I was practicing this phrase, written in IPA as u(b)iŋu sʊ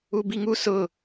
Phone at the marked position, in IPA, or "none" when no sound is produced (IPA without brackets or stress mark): b